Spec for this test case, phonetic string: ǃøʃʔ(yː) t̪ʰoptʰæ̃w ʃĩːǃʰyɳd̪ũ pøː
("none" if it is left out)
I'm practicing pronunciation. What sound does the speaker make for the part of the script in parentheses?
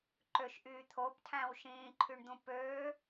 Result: yː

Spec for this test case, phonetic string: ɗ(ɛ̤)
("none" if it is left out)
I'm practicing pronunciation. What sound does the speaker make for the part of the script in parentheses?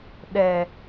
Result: ɛ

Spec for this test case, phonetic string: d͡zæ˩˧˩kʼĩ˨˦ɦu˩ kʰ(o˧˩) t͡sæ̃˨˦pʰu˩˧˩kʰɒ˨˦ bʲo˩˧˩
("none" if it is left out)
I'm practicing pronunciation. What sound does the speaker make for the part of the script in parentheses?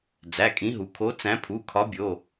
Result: o˨˦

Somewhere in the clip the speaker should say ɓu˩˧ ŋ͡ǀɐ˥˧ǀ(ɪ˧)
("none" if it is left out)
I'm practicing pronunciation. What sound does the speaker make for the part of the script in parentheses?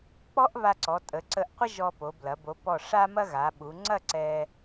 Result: ɛ˧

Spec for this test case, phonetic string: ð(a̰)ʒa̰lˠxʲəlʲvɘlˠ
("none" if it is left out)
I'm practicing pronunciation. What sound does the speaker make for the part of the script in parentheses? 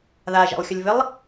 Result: a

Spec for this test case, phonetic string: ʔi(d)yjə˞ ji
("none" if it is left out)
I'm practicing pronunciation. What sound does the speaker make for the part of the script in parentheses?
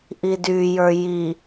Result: d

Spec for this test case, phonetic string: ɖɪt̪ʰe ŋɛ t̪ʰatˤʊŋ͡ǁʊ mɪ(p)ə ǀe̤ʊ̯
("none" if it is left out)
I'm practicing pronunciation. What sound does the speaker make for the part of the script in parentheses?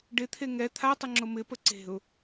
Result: p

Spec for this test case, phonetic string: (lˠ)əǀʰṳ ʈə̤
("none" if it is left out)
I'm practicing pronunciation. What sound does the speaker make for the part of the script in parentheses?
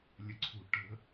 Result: lʲ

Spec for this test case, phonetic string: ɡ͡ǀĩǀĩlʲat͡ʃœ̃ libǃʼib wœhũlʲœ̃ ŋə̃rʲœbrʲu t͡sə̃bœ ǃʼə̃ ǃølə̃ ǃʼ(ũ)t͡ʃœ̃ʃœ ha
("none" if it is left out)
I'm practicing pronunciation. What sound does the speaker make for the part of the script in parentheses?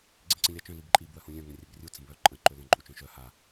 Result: u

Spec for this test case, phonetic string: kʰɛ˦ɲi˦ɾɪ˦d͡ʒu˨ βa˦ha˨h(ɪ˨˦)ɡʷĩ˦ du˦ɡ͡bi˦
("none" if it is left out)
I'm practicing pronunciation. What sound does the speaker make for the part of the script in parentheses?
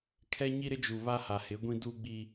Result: ɪ˨˦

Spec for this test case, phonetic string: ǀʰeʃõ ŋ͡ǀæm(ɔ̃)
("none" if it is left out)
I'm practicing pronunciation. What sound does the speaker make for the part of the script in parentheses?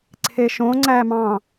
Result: ɑ̃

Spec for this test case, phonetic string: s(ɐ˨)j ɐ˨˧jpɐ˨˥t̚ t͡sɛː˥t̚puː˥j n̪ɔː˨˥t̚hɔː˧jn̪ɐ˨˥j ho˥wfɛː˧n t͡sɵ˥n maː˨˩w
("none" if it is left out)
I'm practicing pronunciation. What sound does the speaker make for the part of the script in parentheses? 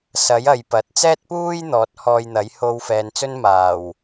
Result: ɐ˨˥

